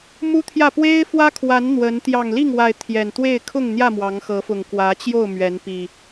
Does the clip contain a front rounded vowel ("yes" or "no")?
no